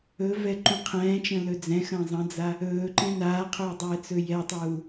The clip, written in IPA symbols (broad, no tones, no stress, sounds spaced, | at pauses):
ɵ v ɛ ǃ ũ qʰ ɛ̃ː t͡ʃ ə̃ l ɵ d͡z ɛ̃ x ə̃ː zˤ ə̃ d͡z a | ɵː ǃ ɛ̃ n aː qʰ ɵː dˤ ɛː t͡s ɵ j ɛ tˤ uː